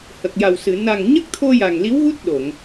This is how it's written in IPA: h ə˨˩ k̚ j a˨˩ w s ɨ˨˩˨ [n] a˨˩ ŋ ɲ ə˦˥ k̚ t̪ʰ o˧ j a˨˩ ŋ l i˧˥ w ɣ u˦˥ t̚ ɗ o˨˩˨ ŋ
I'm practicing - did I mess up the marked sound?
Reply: no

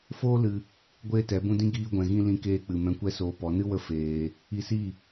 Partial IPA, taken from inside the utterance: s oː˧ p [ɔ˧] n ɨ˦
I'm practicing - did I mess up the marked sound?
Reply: yes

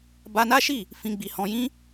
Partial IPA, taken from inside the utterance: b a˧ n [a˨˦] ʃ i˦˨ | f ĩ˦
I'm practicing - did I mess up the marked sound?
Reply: yes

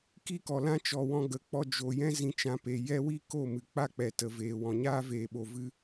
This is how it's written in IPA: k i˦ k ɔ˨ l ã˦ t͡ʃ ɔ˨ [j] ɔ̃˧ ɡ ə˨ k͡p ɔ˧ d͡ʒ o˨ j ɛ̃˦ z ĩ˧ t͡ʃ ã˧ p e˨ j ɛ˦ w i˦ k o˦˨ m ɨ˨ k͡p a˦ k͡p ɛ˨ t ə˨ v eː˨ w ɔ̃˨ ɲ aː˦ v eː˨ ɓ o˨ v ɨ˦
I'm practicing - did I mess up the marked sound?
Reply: yes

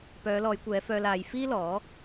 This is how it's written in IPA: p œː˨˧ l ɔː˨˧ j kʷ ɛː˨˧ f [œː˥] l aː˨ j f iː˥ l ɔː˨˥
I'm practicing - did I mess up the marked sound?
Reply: yes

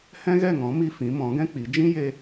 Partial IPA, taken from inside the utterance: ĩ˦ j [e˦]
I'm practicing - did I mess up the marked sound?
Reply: no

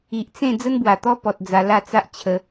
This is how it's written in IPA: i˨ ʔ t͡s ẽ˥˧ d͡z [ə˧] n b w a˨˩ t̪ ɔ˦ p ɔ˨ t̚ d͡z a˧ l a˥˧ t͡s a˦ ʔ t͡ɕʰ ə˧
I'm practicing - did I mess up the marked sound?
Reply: yes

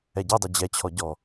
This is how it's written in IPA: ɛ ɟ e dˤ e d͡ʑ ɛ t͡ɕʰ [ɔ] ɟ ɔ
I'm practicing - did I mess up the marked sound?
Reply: no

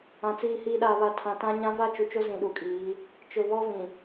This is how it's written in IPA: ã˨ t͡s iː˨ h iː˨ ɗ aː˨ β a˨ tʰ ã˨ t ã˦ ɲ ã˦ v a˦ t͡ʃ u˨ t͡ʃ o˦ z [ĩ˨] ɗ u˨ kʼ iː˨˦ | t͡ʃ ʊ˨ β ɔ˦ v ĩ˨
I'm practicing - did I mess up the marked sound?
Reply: no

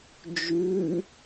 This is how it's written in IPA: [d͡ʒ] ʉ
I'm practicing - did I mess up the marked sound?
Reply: no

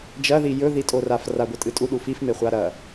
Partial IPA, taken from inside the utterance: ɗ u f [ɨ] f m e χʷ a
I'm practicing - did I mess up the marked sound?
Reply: yes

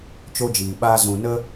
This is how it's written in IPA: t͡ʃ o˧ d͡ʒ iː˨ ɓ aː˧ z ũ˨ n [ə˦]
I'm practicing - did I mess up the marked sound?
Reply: no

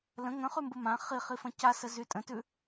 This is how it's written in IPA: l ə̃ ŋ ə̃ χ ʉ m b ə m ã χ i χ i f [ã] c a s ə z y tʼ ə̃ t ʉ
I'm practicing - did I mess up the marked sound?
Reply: yes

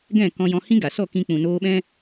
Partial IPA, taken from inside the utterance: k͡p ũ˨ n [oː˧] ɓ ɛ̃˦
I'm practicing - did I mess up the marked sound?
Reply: no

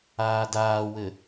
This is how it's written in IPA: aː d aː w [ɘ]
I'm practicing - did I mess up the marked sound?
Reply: no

